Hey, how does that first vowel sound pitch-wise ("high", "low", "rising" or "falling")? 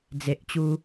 low